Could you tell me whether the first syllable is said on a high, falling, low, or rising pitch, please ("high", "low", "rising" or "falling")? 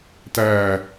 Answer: falling